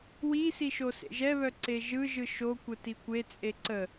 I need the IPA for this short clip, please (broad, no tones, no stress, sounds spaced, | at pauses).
w i s i ʃ o s ḛ ʒ ɛ β œ ǀ e ʒ ɯ ʒ ɯ ʃ o kʷ ə t i kʷ e t͡sʼ e ǀ ə